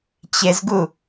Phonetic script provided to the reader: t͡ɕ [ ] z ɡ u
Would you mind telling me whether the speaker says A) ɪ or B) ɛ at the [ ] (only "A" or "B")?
A